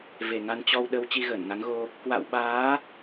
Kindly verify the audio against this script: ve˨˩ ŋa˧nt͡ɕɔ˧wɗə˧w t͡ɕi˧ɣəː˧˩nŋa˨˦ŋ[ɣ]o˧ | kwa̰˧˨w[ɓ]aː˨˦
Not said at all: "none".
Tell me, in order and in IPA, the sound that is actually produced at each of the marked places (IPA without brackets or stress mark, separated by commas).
ɣ, ɓ